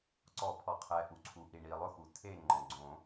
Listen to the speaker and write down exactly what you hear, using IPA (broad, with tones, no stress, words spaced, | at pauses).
ǀɔ˨˩˦pʰɔ˩qʰɛ˩ ʔu˩ǀʰu˩ʔi˩ ɳi˩ lˠʊ˦˨xu˩ tʰe˦˨ŋ͡ǃɔ̃˩ ɡ͡ǀõ˨˩˦